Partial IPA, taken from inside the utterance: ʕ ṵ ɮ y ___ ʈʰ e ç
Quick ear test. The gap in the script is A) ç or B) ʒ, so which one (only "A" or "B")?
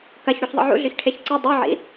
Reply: A